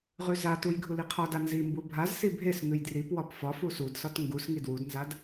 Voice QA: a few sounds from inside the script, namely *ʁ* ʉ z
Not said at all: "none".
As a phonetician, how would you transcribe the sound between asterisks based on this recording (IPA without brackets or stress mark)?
ʁ